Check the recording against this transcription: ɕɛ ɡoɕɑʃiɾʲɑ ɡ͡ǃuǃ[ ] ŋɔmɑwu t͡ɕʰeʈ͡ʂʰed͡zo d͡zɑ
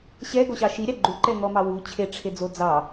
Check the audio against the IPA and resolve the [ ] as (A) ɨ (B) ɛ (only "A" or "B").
B